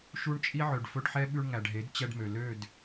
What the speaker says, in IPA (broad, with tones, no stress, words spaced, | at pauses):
ʃu˦ɳt͡ʃʼi˦ ʕø˨ɖfɵ˦ɖħɛ˦ ɓʉ˧ɳŋæ˨ɖɦe˨˦d t͡ɕɛ˧ɖmø˨ lø˦˨d